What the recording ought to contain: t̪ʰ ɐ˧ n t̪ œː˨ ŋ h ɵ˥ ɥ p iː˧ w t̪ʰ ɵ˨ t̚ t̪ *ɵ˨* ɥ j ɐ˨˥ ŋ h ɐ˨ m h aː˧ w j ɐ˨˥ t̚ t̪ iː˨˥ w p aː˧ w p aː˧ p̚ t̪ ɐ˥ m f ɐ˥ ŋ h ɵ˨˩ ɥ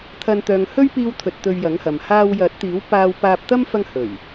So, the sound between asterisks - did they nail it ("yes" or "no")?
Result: no